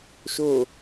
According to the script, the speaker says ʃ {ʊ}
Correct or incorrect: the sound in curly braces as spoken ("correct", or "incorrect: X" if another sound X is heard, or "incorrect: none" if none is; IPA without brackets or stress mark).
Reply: correct